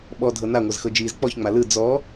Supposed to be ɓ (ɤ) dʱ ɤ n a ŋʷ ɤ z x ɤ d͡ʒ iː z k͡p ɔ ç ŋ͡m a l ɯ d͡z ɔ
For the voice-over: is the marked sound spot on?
no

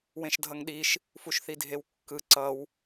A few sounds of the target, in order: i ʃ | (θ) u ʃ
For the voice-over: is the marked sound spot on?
no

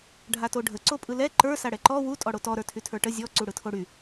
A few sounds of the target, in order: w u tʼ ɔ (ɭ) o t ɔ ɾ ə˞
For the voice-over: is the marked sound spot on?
no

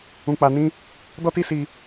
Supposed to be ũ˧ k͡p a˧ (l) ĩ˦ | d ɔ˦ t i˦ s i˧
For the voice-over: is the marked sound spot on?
no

